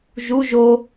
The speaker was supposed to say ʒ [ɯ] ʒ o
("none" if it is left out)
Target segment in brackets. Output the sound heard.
u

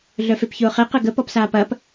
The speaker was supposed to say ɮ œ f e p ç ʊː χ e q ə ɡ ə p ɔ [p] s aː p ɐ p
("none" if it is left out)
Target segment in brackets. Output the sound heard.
p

